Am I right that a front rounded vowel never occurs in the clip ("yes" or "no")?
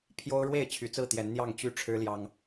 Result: no